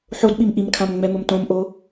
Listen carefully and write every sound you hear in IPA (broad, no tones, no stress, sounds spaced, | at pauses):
ħ o d ɓ i m ʔ i m kʰ ã m ŋ͡m ɛ m ʊ m t õ m ʔ o